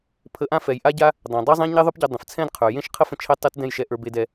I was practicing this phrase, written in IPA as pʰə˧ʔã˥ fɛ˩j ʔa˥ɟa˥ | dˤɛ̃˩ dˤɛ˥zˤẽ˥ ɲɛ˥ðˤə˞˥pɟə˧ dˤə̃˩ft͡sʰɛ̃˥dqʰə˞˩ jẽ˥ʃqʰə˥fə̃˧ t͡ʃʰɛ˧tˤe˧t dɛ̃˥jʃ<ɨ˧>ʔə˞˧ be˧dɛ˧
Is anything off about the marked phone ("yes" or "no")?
yes